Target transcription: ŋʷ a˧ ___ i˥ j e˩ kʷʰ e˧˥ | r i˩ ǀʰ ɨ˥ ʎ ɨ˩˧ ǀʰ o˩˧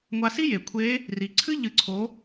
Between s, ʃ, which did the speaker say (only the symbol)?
s